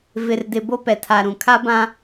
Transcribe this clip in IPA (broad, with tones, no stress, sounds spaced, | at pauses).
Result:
v ɪ˨ r d ɪ˨ b o˦ p ɛ˨ tʰ a˨ ɾ ũ˨ kʰ a˦ b ã˦